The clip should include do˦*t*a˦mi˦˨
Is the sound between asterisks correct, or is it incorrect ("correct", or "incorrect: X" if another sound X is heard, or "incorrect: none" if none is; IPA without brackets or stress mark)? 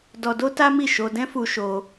correct